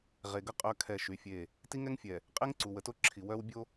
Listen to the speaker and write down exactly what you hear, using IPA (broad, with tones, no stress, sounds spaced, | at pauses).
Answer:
ʁ e˨ ɡ ə˦ qʼ œ˦ kʰ ɛ˦˨ ʃ y˨˦ fʲ e˦˨ | t i˦ ŋ ɛ˦ ŋ fʲ ɛ˨ | qʼ e˦ ŋ ǀ u˨ w ə˨ t o˦ ǁʰ i˨ w œ˦ w bʲ o˦